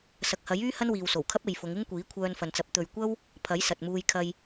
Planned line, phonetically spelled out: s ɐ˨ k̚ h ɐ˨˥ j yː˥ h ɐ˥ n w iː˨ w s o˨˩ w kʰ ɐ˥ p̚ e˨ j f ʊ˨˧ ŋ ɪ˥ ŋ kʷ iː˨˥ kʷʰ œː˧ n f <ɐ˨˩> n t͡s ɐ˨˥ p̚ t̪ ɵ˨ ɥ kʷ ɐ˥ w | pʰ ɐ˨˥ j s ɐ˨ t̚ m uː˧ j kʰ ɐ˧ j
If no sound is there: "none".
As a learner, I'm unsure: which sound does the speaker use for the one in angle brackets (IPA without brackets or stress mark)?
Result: ɐ˨